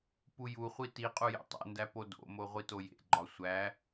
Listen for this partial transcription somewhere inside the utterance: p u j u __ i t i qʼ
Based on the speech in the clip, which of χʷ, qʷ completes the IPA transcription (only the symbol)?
χʷ